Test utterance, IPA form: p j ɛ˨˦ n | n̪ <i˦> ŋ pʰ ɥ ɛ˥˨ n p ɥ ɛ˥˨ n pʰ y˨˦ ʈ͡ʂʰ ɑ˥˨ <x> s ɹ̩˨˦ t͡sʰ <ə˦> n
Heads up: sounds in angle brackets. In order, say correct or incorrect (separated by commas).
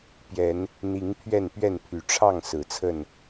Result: incorrect, incorrect, incorrect